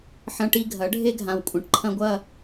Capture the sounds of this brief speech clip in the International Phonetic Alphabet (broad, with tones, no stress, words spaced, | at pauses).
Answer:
ħɐ̃˦ʈi˦ ɡʱɐ˨˦ɖʱe˦ɡʱã˨w kʷʼɐ̃˨ʈǃʰɐ̃˦ɡʷɐ˦˨